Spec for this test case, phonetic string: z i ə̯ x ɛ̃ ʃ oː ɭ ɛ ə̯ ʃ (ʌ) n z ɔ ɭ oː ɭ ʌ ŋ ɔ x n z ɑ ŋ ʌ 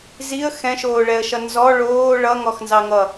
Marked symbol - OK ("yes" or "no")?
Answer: yes